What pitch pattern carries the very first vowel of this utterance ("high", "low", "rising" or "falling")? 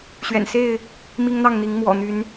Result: low